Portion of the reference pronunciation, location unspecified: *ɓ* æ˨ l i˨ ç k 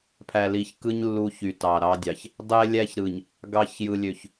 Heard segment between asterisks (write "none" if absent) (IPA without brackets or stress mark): pʰ